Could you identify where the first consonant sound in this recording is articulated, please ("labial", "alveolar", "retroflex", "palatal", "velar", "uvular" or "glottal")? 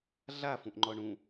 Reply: alveolar